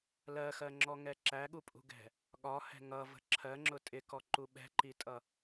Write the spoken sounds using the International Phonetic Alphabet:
lɜxɜŋ͡ǁɔŋɛ ǁæɠupʼṳɡɛ̤ | ɠɒhɛ̤ ŋʌvə̤ ǁʰɜŋ͡ǁʊ tʼɪkɔǃu ɓɛ̤ǃitʼʌ

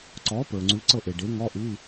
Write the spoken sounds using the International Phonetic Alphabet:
ǀɔ˩˥pə˞˩ŋ͡ǀʉ˩˥ ǀɤ˦˨ʔe˩ɖe˩˥ ŋɔ˧˥˧ʔʉ˧˥˧

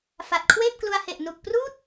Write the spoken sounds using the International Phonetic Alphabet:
fa˨˩t̚kʰweː˥˩p̚klu˧a̯he˨˩ʔ nu˨˩k̚pruː˥˩t̚

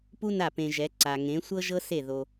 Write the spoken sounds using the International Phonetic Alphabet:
pu˦na˦˨pẽ˧ʒɛ˨˦ ǀa˨ŋẽ˨˦sʷɤ˦ ʒɤ˦se˦˨ ðo˧

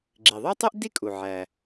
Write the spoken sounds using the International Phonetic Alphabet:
ɡ͡ǁi˩ðˤø˥tˤy˥ʔ di˥kʼu˩ ʕæ˩

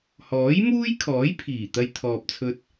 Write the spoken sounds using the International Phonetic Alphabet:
hɔː˨˥jmuː˥jkʰɔː˨˥jpʰiː˨˩ t̪ɐ˧jt̪ʰɔː˨p̚t͡sʰɵ˧t̚

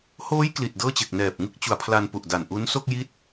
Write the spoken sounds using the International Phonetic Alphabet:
hoː˦˥j kli˨˩t̚dɤː˥˩t͡ɕe˨˩k̚ nɛː˨˩p̚ ŋɯ˥˩k̚t͡ɕu˨˩a̯pʰla˧n pu˨˩ʔda˨˩n ʔu˦˥n so˥˩k̚ji˦˥t̚

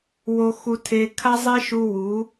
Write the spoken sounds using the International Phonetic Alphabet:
wo˧xu˧tʰe˧ kʰa˦zˤe˦ʃu˧ wu˨˦

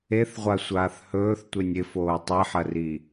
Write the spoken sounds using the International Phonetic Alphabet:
eθʁʷasʷaːθ hɵːθtʷenʲ ɪfoː tˤiħɐri

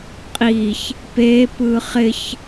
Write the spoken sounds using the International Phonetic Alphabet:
qʼiç | peːp ɯːχɪç

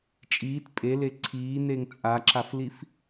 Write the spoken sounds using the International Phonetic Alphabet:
t͡ʃʼiːt pʼele ǀʰiːneŋ t͡sʼaǁaflif

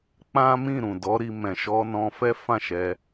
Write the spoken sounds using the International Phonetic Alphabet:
k͡pã˦mĩ˦˨ ɾũ˨dɔ˨˦ɾi˧mɛ̃˨ ʃɔ˧nɔ̃˧fɛ˦ fã˦˨ʃɛ˧

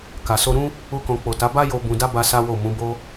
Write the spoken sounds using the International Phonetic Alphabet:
ka˨so˧ɾũ˦ | u˧kɔ̃˨k͡po˨ta˨˦ ba˦jo˧ bũ˧da˦ ba˦sa˦wo˦˨ mũ˨˦bo˦

